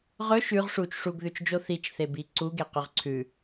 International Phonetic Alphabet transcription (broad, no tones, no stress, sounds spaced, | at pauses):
ʁ ɵ ʃ ʉ ʁ ʂ u t͡ʃ ʂ u ɡ ð ʉ t͡ʃ d͡ʒ o θ i t͡ʃ θ e b i ǀ u ɡ e q ʉ ʁ ǀʰ ʉ